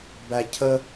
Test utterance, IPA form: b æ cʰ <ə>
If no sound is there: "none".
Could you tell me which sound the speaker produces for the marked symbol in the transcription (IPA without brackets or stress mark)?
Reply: ə